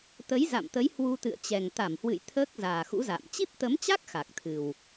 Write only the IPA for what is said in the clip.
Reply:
t̪ ə˨˦ j z a̰˧˨ m t̪ ə˨˦ j h w u˧ t̪ ɨ̰˧˨ ə̯ t͡ɕ ɛ˨˩ ŋ t̪ a˧˩ m h w ɨ̰˧˨ j t̪ʰ əː˦˥ k̚ z aː˨˩ x ṵ˧˥ z a̰ː˧˨ m t͡ɕ i˦˥ p̚ t̪ ə˨˦ m t͡ɕ a˦˥ k̚ x a˨˩ k̚ t̪ʰ ɨ˨˩ w

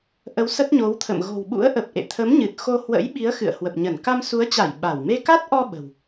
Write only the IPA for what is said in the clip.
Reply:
ʔ ə˨˦ w s ə˦˥ t̚ ɲ o˨˦ w t̪ʰ ə̰˧˨ m ɣ o̤˨˩ w ɓ ṵ˧˥ ə̯ ʔ ə˨˩ p̚ ʔ ḛ˧˨ t̪ʰ ə˨˦ m ɲ ɨ˨˩ t̚ x o˧ h w ə̰˧˥ j ɓ i˨˦ ə̯ x ɨ̰˧˨ ə̯ h w ə˨˩ p̚ ɲ ə˧˩ n k a˧ m s u˨˦ ə̯ t͡ɕ a˧˩ j ɓ a˧˩ w m e˧ k a˦˥ t̚ ʔ ɔ˧ ɓ ə̤˨˩ w

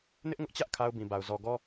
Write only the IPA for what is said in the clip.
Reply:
n ɪ˦ ʔ ŋ ʊ˦ ʔ t͡ɕ ä˦ ʔ kʰ a˦ ʊ̯ b ĩ˨ b a˨ ʊ̯ z ɔ˨ ɡ ɔ˦

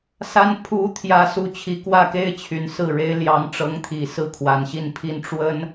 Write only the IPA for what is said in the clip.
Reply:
s a˥ n pʰ u˧˥ t̪ʰ j ä˧˥ s u˧˥ t͡ɕʰ i˧˥ k w ä˥˩ k e˥ ɪ̯ t͡ɕʰ y˨˩ n s ɹ̩˥˩ ɻ e˥ ɪ̯ l j ɑ˧˥ ŋ ʈ͡ʂ ɤ˧˥ ŋ t̪ʰ i˨˩ s ɹ̩˥˩ kʰ w a˨˩ n ɕ i˥˩ n pʰ i˥ n ʈ͡ʂ w ə˥ n

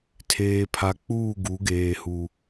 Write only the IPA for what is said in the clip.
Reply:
tʰ eː˨ pʰ a˨ k͡p uː˦˨ ɡ u˨˦ ɡ eː˨ h u˨

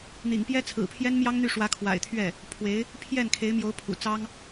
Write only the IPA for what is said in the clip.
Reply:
n̪ ḭ˨˩ ŋ p j ɛ˥ t͡sʰ ɹ̩˨˩ pʰ j ɛ˥ n m j ɑ˥ ŋ n̪ y˥˩ ʂ w ä˧˥ kʰ w a̰˨˩ ɪ̯ t̪ʰ ɥ ɛ˥˩ | pʰ w e˧˥ ɪ̯ | pʰ j ɛ˥˩ n kʰ e˧˥ ɪ̯ m j o˧˥ ʊ̯ pʰ ṵ˨˩ t͡s ɑ˥ ŋ

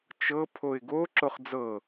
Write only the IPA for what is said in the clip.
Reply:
t͡ʃ ɤ pʰ o ɪ̯ ɡ o ǁ o χ d͡z ɤ

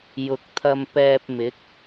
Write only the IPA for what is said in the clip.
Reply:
j ʊ˨ k̚ t̪ʰ ɐ˧ m p ɛː˧ p̚ m ɪ˨˥ k̚

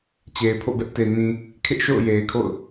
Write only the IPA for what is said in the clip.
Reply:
t͡ɕ e˨ ɪ̯ pʰ o̰˦˨ b ɛ˦ ʔ t e˨ n ĩ˨ | kʰ ɪ˦ ʔ ʃ o̰˦˨ ʊ̯ j e˨ ɪ̯ kʰ o̰˦˨ ʊ̯

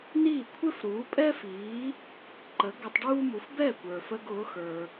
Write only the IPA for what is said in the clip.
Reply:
n iː˥˩ kʷʰ ɪ˥ f ɾ uː˩˥ pʼ ɛ˥ f iː˩˥ | ǃ ə˩˥ ɡ ə˧ tˤ ɖ uː˥ m u˩˥ f b ɛ˥˩ kʷ ə˞˩ f ə˧ ɡ ʊː˩˥ x ə˞˩

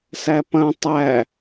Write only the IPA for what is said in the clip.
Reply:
s æ p ɐ̃ tˤ æ

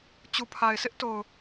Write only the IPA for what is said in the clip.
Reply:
t͡ɕ u˨ pʰ a˨ ɪ̯ s ɪ˦ ʔ t o˨ ʊ̯

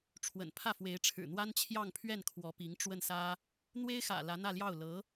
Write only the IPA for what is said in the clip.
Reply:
ʈ͡ʂʰ w ə̰˨˩ n pʰ ä˥˩ f w e˧˥ ɪ̯ ʈ͡ʂʰ ɻ̩˨˩ n̪ w a˥ n t͡ɕʰ j ɑ˥˧ ŋ pʰ ɥ ɛ˥˩ n kʰ w ɔ˧˥ p i˧˥ ŋ ʈ͡ʂ w ə˥˩ n s ä˥ | n̪ w e˥ ɪ̯ x ä̰˨˩ l ä˧˥ n̪ ä˥˧ l j ɑ˥˩ ʊ̯ l ɤ˧˥

